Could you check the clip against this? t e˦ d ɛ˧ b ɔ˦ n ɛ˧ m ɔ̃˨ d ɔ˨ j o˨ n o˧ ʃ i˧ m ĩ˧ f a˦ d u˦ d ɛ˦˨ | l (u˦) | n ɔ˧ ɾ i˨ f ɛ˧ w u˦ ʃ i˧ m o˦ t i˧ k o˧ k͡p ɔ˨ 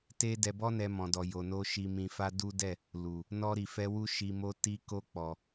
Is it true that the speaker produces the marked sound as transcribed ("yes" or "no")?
no